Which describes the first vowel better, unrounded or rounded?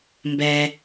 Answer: unrounded